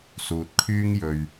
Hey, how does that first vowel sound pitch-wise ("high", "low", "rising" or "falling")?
low